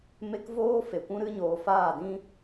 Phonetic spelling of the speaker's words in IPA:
m e˦ k v oː˦ f e˨ kʷ ũ˦ ɾ ɨ˦ ɲ oː˨ f aː˦˨ d ĩ˦

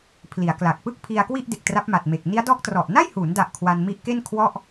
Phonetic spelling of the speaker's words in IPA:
pʰ l i˩˦ a̯ k l a˨˩ k̚ p ɯ˥˩ k̚ pʰ i˧ a̯ k w i˥˩ ʔ d e˨˩ k̚ t r a˦˥ p̚ m a˨˩ t̚ m e˨˩ k̚ n i˦˥ a̯ d ɔː˦˥ k̚ t r ɔ˨˩ ʔ n a˥˩ j h uː˩˦ n d a˨˩ ʔ kʰ w a˧ n m i˦˥ ʔ k e˥˩ n kʰ w ɔ˥˩ ʔ

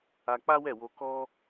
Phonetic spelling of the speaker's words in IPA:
a˧ k͡p a˦ w ɛ˦˨ w o˧ k ɔ˦

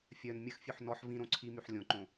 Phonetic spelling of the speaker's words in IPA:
fʲ œ n mʲ ə x fʲ ø ħ n ɔ ħ v ĩ ɾ õ ǀʰ i m y ħ lʲ õ ǃ õ

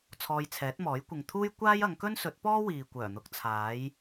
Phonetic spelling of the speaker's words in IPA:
t͡sʰ ɔː˧ j t͡sʰ ɛː˨˥ t̚ m ɔː˨˥ j kʷ ɪ˨ ŋ t̪ʰ uː˥ j kʷ aː˥ j ɐ˨˧ ŋ k ɵ˥ n s ɵ˨˥ t̚ p ɔː˥ w iː˨ kʷ œː˨˩ n̪ ʊ˨˥ k̚ t͡sʰ aː˨˥ j

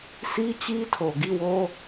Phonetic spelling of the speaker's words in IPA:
s i˦ t͡ɕ i˦ tʰ o˨ ɡ i˦˨ w o˦

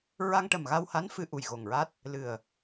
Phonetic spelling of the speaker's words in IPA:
ɹ a˧ ŋ ʈ ə˨˩ m ɣ a˧ w h a˧˥ n f ɨ˧ ʔ u˨˩ j ɣ o˨˩ ŋ ɹ a˦˥ t̚ | l ɨ˨˩ ə̯

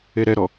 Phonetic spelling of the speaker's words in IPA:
e ɾ ɛ ɾ ɔ

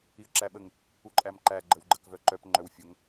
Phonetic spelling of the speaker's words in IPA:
i ə̯ ǁ æ ɓ ə ŋ | u ǃʼ æ m ǃ æ ɡ͡ǃ ə w ɡ͡ǃ ə k v œ ǃ œ p ŋ͡ǃ œ w fʲ o ŋ

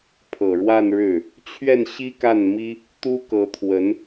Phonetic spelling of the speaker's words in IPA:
pʰ ɤ˨˩ ɻ w a˥˧ n ɻ ɻ̩˥˩ | t͡ɕʰ ɥ ɛ˥˩ n ɕ i˥ k a˥˩ n m i˥ | t̪ u˥ k ɤ˧˥ t̪ʰ w ə˧˥ n

